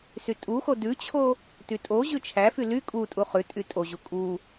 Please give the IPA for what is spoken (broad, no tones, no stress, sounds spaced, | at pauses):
s y tʼ u x o d ʉ t͡ɕʰ o | t y tʼ o ʑ ʉ t͡ʃʰ æ f y l y kʼ u tʼ u χ ʉ tʼ y tʼ o ʑ u kʼ u